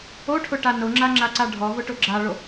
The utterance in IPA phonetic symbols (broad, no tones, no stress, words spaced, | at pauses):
oʈʰʊʈa nʊŋ͡ǁaŋ͡ǁaǀa ɖʱɔvʊʈʊ ɡ͡ǁaɭo